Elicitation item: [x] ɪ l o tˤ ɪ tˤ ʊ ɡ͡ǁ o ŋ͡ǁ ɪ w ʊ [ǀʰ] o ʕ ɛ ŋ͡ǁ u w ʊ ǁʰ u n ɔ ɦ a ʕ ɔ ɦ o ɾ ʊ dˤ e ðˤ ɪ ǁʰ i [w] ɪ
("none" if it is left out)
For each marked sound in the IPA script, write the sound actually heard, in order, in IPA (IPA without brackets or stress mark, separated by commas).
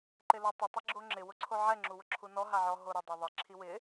ǃ, ǀʰ, w